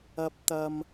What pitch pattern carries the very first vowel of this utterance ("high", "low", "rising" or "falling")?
rising